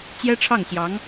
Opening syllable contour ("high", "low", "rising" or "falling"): high